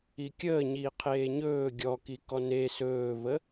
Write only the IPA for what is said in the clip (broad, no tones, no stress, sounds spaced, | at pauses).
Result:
i kʲ əː ɲ iː qʰ eː ɲ ɵː ɡʲ ɔ k i k ɔ n e s ɵː v ə